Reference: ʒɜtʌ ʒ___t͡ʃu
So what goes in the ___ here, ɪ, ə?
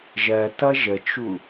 ə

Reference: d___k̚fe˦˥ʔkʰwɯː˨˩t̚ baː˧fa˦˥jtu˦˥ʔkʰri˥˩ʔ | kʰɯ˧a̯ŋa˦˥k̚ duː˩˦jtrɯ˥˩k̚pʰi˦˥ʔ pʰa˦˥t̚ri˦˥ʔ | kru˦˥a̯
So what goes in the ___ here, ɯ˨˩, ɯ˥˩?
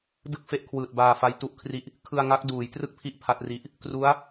ɯ˥˩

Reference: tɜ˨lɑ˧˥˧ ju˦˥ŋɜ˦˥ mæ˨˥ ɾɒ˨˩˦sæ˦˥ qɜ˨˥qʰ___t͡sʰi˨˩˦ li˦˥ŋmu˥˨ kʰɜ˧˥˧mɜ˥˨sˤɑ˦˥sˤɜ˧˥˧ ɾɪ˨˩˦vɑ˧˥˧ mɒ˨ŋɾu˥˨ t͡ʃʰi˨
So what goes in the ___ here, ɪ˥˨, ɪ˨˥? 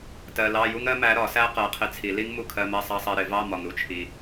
ɪ˨˥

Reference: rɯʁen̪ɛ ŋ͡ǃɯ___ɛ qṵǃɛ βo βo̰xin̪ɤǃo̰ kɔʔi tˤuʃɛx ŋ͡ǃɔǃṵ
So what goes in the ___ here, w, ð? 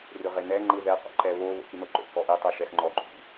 ð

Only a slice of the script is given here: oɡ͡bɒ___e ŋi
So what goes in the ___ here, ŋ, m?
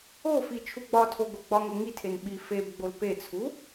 ŋ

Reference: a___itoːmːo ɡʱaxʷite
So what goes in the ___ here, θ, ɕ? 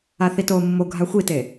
θ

